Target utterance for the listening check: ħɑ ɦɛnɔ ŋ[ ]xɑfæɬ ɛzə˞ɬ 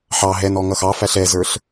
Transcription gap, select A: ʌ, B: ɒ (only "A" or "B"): A